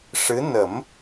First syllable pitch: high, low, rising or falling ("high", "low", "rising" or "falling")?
rising